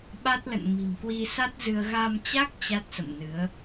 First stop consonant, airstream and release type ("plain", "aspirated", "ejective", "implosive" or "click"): implosive